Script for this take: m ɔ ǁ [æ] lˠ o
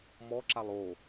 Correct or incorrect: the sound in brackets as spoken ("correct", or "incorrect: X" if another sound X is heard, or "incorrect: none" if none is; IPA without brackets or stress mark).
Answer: incorrect: a